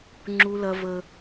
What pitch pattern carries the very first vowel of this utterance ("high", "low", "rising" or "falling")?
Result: high